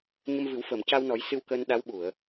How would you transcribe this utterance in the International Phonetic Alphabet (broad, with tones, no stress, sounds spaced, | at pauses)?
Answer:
ɲ ə˧ m v ɨ˨˩˦ w f əː˨˩˨ m c a˧ w n ɔ˨˩˦ j s ɨ˧ w k əː˧ n ɗ a˧˥ w ɓ u˨˩˨ ə̯